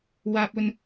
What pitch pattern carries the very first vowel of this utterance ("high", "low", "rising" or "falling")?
low